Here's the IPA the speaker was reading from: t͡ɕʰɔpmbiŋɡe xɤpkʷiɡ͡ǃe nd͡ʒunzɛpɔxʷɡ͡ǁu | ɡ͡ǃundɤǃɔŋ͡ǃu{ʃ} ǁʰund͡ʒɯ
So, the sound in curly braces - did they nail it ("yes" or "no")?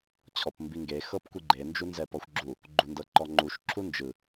yes